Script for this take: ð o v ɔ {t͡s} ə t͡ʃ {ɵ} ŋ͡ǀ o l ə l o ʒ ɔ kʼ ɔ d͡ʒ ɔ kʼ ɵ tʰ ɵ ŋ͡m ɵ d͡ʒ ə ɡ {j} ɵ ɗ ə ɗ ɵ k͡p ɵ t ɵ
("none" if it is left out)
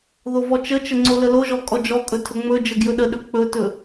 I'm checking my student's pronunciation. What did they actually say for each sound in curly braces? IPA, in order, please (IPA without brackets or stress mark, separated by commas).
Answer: t͡ʃ, ə, j